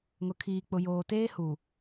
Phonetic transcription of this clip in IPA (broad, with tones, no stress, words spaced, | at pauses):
ŋʊ˨kʰiː˨k͡pʊ˨ joː˨teː˦hu˨